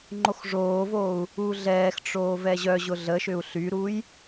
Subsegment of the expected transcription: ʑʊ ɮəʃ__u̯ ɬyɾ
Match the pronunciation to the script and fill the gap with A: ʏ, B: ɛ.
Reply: A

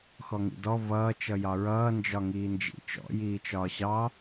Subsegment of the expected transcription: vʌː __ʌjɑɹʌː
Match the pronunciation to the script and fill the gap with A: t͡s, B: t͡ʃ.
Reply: B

